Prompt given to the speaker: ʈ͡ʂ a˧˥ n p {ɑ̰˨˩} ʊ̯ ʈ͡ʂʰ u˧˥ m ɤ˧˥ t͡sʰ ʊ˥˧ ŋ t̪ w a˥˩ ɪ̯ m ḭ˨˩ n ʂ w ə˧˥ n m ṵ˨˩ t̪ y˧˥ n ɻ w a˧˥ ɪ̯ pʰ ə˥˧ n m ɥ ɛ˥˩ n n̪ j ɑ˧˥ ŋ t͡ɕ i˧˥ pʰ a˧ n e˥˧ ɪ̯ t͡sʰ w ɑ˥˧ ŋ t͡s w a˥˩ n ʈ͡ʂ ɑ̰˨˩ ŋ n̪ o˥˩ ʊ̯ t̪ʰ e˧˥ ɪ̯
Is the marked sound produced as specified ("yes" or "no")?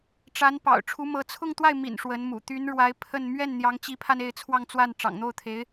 yes